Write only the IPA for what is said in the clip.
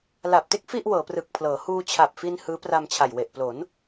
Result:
la˨˩p̚te˥˩k̚ fi˥˩ʔwɤː˩˦prɯ˨˩k̚pʰlɤː˩˦ huː˧t͡ɕʰa˨˩p̚fi˧n hɯː˦˥pra˧mt͡ɕʰa˨˩j we˨˩ʔplo˩˦n

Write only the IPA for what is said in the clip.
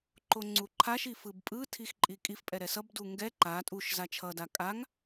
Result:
ǃoŋ͡ǀuǃʰaʃi fɯbpʼɯtʰix ǃʼikʼifpʼɛ ɾɛsʌbdu ŋɡɛ ǃa tʼuʃ zat͡ʃʰʌda kʼaŋ

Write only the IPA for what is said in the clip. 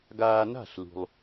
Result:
ɡaː˧na̤˥˩ɬlṳ˩lˠ

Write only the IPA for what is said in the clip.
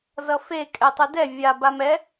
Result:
zʌfe kʼɛtˤɯdɛ vʲa bamɛ

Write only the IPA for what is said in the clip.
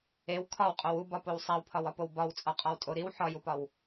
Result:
ew kʰɒwqʼow ubɒpow sˤæwpʰɒwɒpow bɒwt͡sʼɒqʼɒwtʼo ɾiw ħɒjupɒw

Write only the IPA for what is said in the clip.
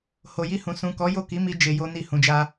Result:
ho˨ji˧hũ˨ sũ˨kɔ˨˦ jo˦˨ki˨˦mi˧ d͡ʒe˧jo˦ni˦˨ hũ˨d͡ʒa˧

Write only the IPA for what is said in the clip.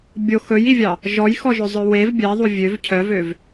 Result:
bʲo xɵjivʲɑ | ʒɔjxɔʒɵzˤœ wev bʲɛðˤu vʲøv cʰœvøv

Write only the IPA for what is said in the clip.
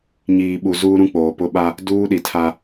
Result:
ɲiː˨ɓu˨zuː˦ ɾũ˦k͡poː˨ pʊ˦ɓa˦ | duː˦ɗi˨tʰa˦

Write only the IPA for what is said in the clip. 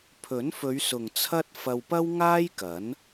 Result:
pʰɵ˨˥nfɵ˨˧ɥ sʊ˨ŋt͡sʰɐ˥t̚ fɐ˧wpɐ˥wŋaː˥jkɐ˨˥n

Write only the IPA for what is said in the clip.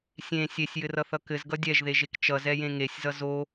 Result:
sʲẽ sʲesʲjɘrʌθʌ kɘzɡʌ dʲɛʒðeʒek t͡ʃʌzɛjẽ ŋesʲzʌ zo

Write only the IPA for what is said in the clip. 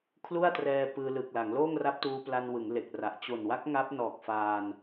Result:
kʰlu˥˩a̯trɛː˧ pɯː˧lɯː˨˩k̚la˩˦ŋ loː˥˩ŋra˦˥p̚tuː˧pla˧n wɯ˩˦ŋle˨˩k̚ra˨˩ʔ t͡ɕo˨˩nwa˦˥k̚ ŋa˦˥p̚nɔː˨˩k̚faː˧n

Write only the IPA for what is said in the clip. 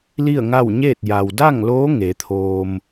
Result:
li˥˨ə̯ŋa˥˨w ɲeː˥˨t̚ ja˩wda˥˨ŋloː˧˥ ŋe˩˧t̪ʰoː˧m

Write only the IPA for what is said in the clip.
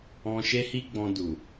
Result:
ɔ̃˧ʃe˦hi˦ɡ͡bɔ̃˧ du˨

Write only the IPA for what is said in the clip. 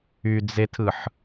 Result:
yd͡zetʰɯħ

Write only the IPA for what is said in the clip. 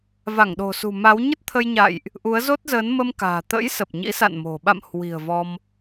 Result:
va˧˩ŋɗo̤˨˩sṳ˨˩ ma˨˦w ɲə˦˥t̚t̪ʰə˧jɲa̰ː˧˨jʔ | ʔu˨˦ə̯zo˦˥t̚zəː˨˦n mə˧mka̤ː˨˩t̪ə̰˧˥j sə˨˩p̚ɲḭ˧˥sa̰˧˨nmo̤˨˩ ɓa̰˧˨mhwi̤˨˩ə̯ vɔ˧m

